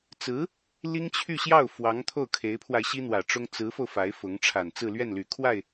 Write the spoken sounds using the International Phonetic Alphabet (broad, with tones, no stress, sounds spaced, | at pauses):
t͡s ɹ̩˧˥ | l i˥ ŋ t͡ɕʰ y˥˧ ɕ j ɑ˥˩ ʊ̯ f w ɑ˧˥ ŋ t̪ʰ o˥˩ ʊ̯ kʰ e˧˥ ɪ̯ pʰ w a˧ ɪ̯ ɕ i˥ n̪ w ä˨˩ ʈ͡ʂ ʊ˥ ŋ t͡s ɹ̩˧˥ f o˧ ʊ̯ f a˧˥ ɪ̯ f ʊ˧˥ ŋ ʈ͡ʂʰ a˨˩ n t͡s ɹ̩˥˧ l ɥ ɛ˥˩ n l y˨˩ kʰ w a˥˩ ɪ̯